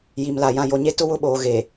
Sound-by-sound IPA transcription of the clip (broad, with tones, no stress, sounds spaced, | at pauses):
j i˨ m l a˨ j ã˨ j o˨ ɲ e˦ t ʊ˦ w ʊ˦˨ ɓ oː˨ ɣ e˨